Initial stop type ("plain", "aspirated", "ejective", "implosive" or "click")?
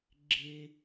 click